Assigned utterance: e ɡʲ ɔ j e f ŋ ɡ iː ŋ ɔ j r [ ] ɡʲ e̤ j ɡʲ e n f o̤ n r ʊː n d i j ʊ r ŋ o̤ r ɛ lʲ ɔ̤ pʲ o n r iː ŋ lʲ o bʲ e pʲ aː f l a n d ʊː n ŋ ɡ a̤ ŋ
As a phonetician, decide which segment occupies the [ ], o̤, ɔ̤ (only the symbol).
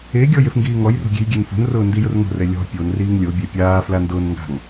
o̤